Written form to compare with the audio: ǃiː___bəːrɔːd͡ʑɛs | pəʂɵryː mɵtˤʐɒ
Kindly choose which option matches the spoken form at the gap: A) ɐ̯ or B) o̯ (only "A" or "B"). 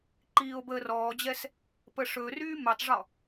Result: B